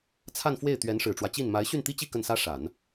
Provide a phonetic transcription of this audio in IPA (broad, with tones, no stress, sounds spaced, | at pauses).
t͡sʰ a˥˧ n f w e˥˩ ɪ̯ t̪ ɥ ɛ˧˥ n ʂ ɻ̩˨˩ ʈ͡ʂ w ä˦ t͡ɕ i˥˩ n m a˧˥ ɪ̯ ɕ y˥˩ n t̪ i˥ t͡ɕ i˥˧ k ə˥˩ n s ä˥ ʂ a˨˩˦ n